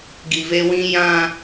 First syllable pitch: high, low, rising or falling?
low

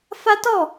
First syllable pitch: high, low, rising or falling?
high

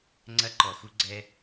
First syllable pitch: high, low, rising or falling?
high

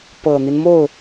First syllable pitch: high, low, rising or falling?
low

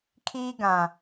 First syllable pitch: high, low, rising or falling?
high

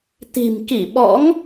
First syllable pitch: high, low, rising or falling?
low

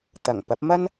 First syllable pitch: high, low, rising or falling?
low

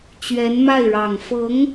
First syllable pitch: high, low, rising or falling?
rising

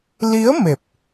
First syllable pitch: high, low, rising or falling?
rising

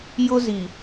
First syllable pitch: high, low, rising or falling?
high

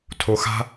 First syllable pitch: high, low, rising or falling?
low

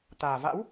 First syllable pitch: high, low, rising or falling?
low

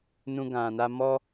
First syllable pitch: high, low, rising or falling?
high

